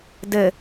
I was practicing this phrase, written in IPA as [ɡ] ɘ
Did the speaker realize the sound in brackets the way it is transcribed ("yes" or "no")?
no